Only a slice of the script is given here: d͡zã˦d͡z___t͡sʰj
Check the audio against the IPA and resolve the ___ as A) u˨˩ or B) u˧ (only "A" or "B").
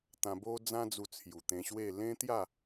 B